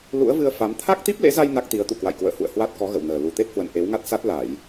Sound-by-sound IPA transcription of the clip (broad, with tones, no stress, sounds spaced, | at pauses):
l ṵ˧˥ ə̯ v ɨ˧ ə̯ f a˨˦ m t̪ʰ a˦˥ k̚ t̪ i˦˥ p̚ l ḛ˧˥ z a˧ j n a˦˥ k̚ t̪ i˨˦ ə̯ t̪ ṵ˧˨ k w a̰˧˨ j k w ə̰ː˧˨ h ṵ˧˨ ə̯ h w a˦˥ t̚ k ɔ˨˦ ɣ ə̰˧˨ w n əː˨˩ l u˨˩ t̪ e˦˥ t̚ h w ə̰˧˨ n ʔ e˨˦ w ŋ a˦˥ t̚ s a˦˥ t̚ l a˧˩˨ j